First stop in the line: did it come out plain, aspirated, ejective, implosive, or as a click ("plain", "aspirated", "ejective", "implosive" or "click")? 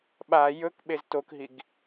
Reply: implosive